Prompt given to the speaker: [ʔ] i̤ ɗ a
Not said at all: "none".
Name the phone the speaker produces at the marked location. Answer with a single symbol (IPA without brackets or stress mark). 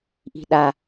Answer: ʔ